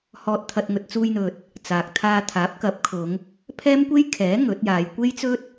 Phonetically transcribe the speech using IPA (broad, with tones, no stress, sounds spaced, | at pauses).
h ɔː˧ t̚ t̪ʰ ɐ˧ t̚ ŋ ɵ˧ t̚ t͡s uː˧ j n̪ ɵ˨ t̚ | t͡s aː˨ k̚ t̪ʰ aː˧ t̪ʰ aː˨˥ p̚ k ɐ˨˥ p̚ kʰ ʊ˨˧ ŋ | pʰ ɛː˥ m kʷ e˥ j kʰ ɛː˨˥ ŋ ɵ˨˥ t̚ j aː˨˧ j kʷ e˥ j t͡s ɵ˥ t̚